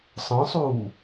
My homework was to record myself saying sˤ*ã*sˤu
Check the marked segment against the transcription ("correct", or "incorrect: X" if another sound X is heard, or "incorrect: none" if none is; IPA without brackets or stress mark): incorrect: ə̃